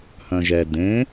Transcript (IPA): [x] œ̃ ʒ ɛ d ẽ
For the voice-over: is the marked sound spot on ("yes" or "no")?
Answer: no